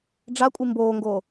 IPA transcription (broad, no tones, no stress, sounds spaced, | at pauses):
ɖ͡ʐ a kʷʼ i m b oː ŋ ɡ oː